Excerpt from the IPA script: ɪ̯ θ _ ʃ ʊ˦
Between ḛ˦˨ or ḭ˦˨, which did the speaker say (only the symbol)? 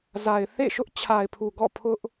ḛ˦˨